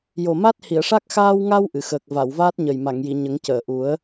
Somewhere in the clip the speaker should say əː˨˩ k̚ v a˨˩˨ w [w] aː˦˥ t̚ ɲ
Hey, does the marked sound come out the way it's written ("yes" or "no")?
no